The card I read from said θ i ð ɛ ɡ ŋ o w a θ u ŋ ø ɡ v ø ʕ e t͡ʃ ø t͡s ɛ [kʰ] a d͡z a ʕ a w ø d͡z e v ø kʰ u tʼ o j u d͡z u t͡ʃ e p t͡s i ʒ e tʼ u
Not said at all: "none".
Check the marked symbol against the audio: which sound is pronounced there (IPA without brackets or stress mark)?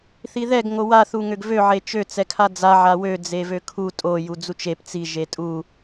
kʰ